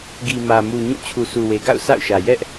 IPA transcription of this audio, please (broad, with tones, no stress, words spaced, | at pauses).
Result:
ɡi˨mä˨mu˨ ɲũ˦˨ t͡ɕʰu˨sʰu˨we˨ɡa̰˦˨ʊ̯ sa̰˦˨ʊ̯ʃä˨ jɛ˦ʔ